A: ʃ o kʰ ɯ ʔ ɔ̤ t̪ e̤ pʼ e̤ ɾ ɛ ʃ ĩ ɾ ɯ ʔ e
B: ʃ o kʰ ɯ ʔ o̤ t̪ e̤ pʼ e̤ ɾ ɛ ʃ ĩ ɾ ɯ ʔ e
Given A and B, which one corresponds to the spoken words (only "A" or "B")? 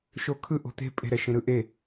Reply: B